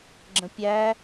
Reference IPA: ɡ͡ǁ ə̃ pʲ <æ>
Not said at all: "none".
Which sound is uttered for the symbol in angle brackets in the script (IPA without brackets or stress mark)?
æ